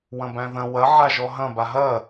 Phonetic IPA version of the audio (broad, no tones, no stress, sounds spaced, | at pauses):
w ɐ̃ b æ̃ ð ɐ̃ w ɐ ʕ a ʒ ɔ ɦ ɐ̃ b a ɦ ɐ